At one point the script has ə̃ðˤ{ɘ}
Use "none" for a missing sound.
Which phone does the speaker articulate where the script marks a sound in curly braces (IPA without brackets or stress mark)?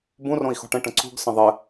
ɘ